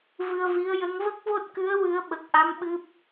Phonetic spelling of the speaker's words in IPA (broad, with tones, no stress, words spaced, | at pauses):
vɨ˧ə̯vi˧˥ə̯jə˧˥ŋ və˦˥k̚vo˦˥t̚kɨ˧˥ə̯ wɨ˧˥ə̯ ɓə˨˩k̚ʔa˧˥m ɓɨ˦˥p̚